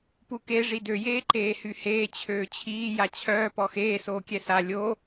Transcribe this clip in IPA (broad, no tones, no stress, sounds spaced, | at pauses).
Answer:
p u k e ʐ i d ø j eː ǃ eː h y h eː t͡ɕʰ øː t͡ɕʰ iː j a t͡ɕʰ œː p ɔ x eː s oː kʲ ɛ s a lʲ o